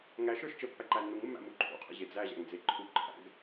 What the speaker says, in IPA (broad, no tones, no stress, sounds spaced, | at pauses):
ŋ æ ʃ ə˞ ʃ t͡ʃ ə pː æ ǃ æ nː u ŋ mː æ̰ m u ǃʰ ṵ qʰ ə̰ ʑ e d͡z æ ʑ æ̰ ŋ d͡z e ǃʰ u ǃʰ æ̰ ɡ